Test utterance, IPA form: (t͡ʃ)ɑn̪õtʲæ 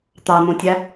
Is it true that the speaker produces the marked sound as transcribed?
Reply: no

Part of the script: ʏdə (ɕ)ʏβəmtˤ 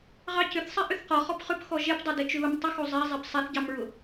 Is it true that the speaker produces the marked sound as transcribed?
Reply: no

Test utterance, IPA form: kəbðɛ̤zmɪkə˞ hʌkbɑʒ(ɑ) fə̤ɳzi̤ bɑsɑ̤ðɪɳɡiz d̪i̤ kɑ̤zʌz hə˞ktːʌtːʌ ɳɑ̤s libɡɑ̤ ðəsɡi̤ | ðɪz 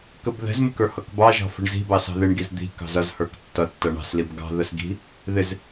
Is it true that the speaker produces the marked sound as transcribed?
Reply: no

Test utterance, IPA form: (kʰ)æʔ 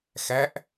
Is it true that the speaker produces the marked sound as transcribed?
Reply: no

